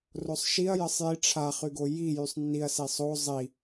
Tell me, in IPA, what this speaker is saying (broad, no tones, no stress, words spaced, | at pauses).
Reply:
rosˤʃiɐ̯ jəsˤji ʈ͡ʂʰa χyɡoji jysˤnːiɐ̯ sisˤo zˤi